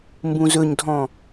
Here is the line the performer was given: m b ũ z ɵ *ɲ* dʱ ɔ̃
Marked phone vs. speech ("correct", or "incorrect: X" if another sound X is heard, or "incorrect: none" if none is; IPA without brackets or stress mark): correct